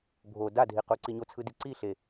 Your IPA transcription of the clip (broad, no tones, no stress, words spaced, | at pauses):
bʱo dadʱi quǀiɲot͡sʰɯ diǀiɬe